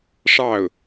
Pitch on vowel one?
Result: falling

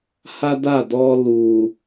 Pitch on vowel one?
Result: high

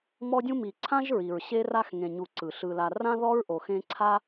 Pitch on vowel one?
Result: high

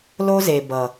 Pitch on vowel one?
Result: high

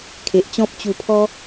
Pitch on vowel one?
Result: low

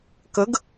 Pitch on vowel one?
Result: rising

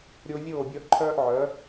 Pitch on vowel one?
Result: high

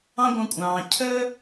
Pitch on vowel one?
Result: high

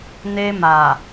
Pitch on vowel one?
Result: high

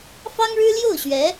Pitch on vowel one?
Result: high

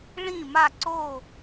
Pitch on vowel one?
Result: falling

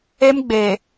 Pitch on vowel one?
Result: high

